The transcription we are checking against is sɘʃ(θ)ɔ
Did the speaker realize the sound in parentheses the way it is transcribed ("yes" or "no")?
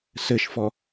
no